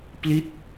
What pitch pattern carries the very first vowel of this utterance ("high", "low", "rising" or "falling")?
falling